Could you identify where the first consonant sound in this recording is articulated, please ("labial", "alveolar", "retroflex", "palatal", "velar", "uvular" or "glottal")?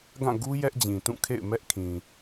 velar